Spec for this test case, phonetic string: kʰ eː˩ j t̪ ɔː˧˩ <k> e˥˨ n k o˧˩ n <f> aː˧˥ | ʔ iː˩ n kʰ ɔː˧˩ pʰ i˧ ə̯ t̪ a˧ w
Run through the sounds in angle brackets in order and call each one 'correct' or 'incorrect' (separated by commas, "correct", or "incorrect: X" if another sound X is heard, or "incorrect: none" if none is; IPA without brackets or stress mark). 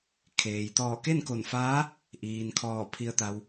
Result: correct, correct